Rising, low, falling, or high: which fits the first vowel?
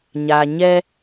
low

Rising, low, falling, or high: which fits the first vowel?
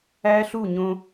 high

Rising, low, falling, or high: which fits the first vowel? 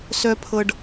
high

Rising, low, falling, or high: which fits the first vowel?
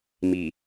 low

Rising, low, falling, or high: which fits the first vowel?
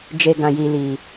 low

